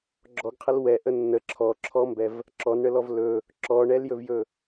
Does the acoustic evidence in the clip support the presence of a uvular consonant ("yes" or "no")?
yes